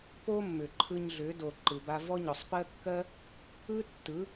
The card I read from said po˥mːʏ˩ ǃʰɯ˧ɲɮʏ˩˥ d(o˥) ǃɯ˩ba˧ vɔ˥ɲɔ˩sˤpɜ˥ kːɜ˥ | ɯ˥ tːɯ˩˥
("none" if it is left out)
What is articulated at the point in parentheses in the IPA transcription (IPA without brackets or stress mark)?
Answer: o˩